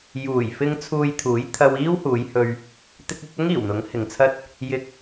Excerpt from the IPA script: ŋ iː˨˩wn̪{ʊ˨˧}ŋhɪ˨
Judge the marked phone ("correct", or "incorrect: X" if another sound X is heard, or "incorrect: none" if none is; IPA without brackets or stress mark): incorrect: ʊ˨˥